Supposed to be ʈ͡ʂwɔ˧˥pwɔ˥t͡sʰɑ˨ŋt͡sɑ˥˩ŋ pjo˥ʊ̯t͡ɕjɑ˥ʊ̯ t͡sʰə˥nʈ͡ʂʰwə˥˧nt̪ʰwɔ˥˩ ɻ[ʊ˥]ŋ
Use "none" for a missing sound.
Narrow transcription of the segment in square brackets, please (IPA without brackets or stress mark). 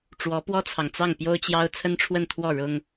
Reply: ʊ˥